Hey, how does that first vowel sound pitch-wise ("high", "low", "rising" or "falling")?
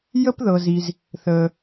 high